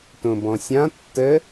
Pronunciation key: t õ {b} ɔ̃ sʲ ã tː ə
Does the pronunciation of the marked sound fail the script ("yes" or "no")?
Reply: no